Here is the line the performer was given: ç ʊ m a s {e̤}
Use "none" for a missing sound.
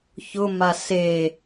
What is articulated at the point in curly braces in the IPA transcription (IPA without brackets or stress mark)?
e